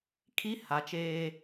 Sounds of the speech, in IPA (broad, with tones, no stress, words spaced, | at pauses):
kʰi˦ ha˨˦t͡ʃeː˦